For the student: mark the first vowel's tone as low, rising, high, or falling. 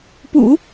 low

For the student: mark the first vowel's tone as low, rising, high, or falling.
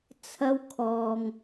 high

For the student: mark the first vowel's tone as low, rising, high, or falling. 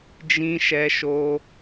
high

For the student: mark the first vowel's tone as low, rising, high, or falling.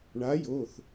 rising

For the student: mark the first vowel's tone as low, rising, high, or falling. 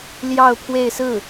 falling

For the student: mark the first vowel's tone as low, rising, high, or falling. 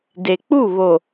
low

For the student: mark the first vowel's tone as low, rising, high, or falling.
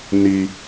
high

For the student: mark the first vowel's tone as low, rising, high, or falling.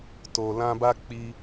low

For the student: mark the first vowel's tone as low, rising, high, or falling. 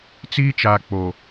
high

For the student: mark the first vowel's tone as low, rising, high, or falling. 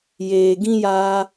low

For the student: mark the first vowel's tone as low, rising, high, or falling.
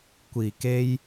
low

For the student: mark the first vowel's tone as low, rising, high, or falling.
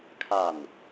falling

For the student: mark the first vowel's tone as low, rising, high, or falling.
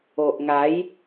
low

